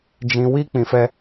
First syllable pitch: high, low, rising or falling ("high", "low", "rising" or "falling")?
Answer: low